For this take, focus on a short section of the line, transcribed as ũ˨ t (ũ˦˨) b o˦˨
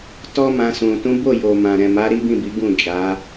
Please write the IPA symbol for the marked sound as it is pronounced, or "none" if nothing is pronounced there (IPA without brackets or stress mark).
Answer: ũ˨˦